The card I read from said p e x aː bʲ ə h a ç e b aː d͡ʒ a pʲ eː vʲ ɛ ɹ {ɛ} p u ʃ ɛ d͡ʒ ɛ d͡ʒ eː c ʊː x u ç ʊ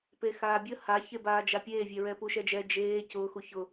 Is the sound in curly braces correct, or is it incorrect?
correct